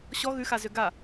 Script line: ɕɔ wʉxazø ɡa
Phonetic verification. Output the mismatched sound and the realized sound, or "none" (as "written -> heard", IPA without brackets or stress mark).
w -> ɣ